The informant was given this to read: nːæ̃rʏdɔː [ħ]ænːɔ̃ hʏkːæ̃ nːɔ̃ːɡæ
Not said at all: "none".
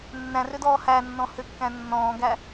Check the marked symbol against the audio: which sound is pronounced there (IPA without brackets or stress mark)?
h